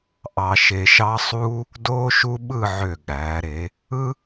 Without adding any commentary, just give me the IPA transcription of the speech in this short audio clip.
ʔ ɑ˧ ʃ e˧ ʃ ɑ˥ sˤ uː˥ | d oː˥ ʃ u˥ ɓ ɯ˥˧ ʕ ø˧˩ ɠ æː˩˧ ɾ e˩˧ | ɯ˥

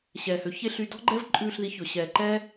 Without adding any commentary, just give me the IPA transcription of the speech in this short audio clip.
ɕ ɛː˨ h ø˨ ç e˦ ɬ y˧ d ɔ̤˦ ɡ͡ǃ ɛ˦ v ǃʼ ʉː˦˨ ɬ ð i˧ ç ɵ˨ ɕ ɛː˨ ǃ ɛː˦

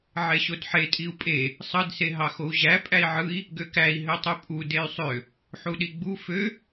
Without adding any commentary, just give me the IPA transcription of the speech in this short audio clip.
ʕ e ɕ o d ħ e tʼ i u̯ pʼ e | sˤ ɯ d s e ɦ ɑ x o u̯ ʑ æ pʼ æ i̯ ʕ ɯ i̯ | ɡ ø k æ i̯ ɦ ø tˤ y pʼ u d e y̯ sˤ ø | ħ u ɗ i ɡ͡b u f ø

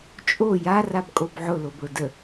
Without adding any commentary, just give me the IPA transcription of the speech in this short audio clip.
t͡ʃʼ o j a r a b kʼ o b ʕ ʊ l o b ɭ ʊ d ə

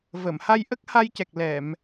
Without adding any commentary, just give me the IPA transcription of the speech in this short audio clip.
v ə˨˩˨ m h a˧ j ʔ ə˦˥ k̚ h a˧ j c ɛ˨˩ k̚ l ɛ˨˩˨ m

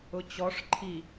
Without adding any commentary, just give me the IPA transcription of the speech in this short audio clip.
ʊ t͡ɕ ɔ ʂ ǃʰ i

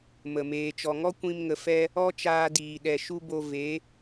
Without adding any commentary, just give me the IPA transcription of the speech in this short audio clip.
m ə˨ m eː˨ t͡ʃ ɔ˨ ŋ ɔ˦ kʷ ĩ˧ m ŋ ə˨ f ɛ˧ | ɔ˦ t͡ʃ aː˧ d iː˨ ɗ ɛ˨ ʃ u˦ b o˧ v e˨˦

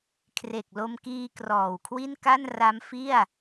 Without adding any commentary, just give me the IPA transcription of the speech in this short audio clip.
kʰ r e˨˩ k̚ l o˧ m k iː˧ k r ɔː˨˩ w kʰ w i˥˩ n k a˥˩ n r a˦˥ m f i˥˩ a̯

